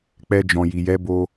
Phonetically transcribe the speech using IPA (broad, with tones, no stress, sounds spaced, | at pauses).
k͡p ɛ˧ d͡ʒ ɔ̃˨ j i˨ j ɛ˨˦ b o˧